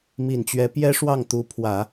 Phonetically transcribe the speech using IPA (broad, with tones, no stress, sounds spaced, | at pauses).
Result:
m i˨˩ n t͡ɕ ɥ ɛ˧˥ p j ɛ˥ ʂ w ɑ˥˩ ŋ t̪ u˧˥ pʰ w ä˨˩˦